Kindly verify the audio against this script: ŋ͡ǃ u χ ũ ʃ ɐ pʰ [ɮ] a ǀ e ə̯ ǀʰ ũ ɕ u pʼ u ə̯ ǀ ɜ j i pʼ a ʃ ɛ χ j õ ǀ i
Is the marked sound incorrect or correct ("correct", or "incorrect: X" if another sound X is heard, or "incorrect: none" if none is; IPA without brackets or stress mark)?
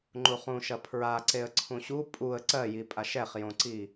incorrect: ɹ